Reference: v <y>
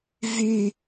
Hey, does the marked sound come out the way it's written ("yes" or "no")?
yes